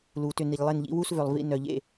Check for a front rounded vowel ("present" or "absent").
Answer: present